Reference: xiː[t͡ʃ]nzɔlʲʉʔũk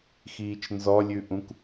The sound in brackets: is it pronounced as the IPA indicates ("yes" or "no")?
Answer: yes